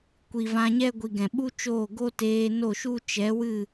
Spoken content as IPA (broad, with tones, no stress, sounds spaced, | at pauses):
kʷ i˨ v ã˧ ɲ ɛ˦ ɡʷ i˨ ɡ ɛ̃˨ ɓ u˦ t͡ʃ oː˦˨ ɡ o˦ t eː˧ n o˦˨ ʃ u˦ t͡ʃ ɛ˨˦ w ɨ˦˨